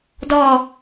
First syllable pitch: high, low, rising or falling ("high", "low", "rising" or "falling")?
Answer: falling